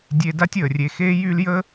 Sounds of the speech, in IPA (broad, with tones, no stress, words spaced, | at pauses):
dʲe˥ da˥tʲəː˩rʲe˨xeː˥ jy˦ljə˥